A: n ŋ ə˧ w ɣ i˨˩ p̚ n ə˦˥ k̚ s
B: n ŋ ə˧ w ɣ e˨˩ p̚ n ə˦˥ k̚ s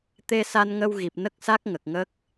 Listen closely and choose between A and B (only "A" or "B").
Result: A